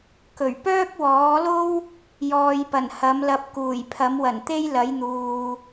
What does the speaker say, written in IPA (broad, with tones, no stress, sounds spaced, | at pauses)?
k ɵ˨˩ ɥ p œː˥ k̚ w ɔː˨˥ l o˥ w | j ɔː˨ j p ɐ˨˩ n h ɐ˨˥ m l ɐ˧ p̚ k uː˨˩ j pʰ ɐ˨˥ m w ɐ˨˩ n t̪ e˥ j l ɐ˨˥ j n̪ uː˨